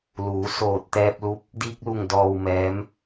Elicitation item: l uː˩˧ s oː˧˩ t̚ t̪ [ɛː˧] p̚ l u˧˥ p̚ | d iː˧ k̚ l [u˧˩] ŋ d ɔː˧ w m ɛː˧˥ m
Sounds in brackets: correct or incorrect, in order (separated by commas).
correct, correct